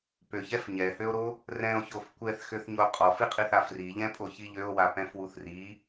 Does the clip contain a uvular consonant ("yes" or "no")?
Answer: yes